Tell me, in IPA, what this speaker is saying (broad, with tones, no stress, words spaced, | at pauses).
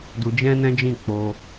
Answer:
du˧d͡ʒɛ̃˦nɛ̃˦d͡ʒĩ˦˨ k͡po˧